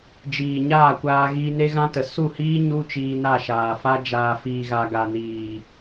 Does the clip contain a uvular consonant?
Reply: no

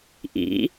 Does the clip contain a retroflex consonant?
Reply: no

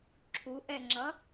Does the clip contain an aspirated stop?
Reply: yes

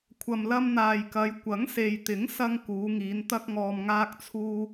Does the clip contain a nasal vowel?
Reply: no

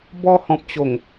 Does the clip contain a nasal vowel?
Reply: yes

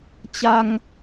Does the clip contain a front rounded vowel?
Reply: no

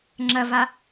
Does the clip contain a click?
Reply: yes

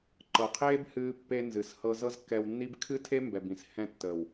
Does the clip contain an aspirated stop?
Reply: yes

